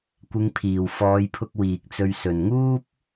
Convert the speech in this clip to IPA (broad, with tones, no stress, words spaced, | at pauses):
kʷɪ˨˧ŋpʰiː˨˩wfɔː˨˧jpʰʊ˧k̚ wiː˨k̚t͡sɵ˧ɥ sɵ˨˩nŋuː˥p̚